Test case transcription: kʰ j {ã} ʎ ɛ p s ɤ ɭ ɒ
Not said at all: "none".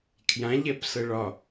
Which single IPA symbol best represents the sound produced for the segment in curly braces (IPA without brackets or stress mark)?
ã